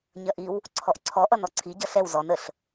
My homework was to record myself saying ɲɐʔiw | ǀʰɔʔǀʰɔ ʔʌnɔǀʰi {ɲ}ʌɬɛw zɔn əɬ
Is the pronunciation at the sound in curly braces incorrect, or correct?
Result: incorrect: ɟ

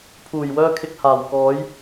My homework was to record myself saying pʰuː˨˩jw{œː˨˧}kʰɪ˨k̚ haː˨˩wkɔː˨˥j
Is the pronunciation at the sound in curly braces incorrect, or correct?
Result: incorrect: œː˧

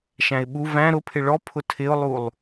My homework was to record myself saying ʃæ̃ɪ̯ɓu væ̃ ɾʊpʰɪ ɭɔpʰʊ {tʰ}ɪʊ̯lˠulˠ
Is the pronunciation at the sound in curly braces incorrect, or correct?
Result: correct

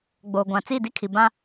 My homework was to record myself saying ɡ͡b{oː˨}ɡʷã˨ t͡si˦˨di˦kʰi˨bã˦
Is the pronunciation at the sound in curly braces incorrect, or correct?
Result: correct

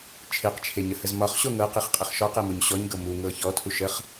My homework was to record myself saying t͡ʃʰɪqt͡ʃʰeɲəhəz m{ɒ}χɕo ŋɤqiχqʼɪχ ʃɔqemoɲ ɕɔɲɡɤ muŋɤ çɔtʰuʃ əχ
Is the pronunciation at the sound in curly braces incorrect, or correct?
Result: correct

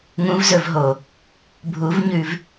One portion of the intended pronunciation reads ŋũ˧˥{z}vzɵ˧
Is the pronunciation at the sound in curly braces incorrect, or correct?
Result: incorrect: none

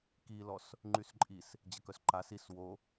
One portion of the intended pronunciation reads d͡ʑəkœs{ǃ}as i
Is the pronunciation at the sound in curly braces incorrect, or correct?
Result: correct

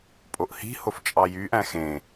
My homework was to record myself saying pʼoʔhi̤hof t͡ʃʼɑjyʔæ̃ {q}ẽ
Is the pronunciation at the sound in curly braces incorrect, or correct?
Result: incorrect: x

